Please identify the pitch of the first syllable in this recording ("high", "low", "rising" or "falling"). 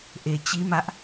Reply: low